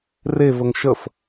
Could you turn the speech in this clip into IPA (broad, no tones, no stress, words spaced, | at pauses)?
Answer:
revəŋ ʃəf